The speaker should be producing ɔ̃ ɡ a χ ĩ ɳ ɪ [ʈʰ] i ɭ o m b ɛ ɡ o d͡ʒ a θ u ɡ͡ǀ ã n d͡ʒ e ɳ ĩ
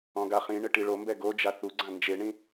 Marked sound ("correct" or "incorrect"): incorrect